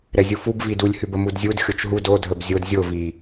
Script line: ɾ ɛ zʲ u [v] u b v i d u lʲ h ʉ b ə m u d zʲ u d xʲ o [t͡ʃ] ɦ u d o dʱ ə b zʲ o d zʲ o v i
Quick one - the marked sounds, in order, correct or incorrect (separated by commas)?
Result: incorrect, correct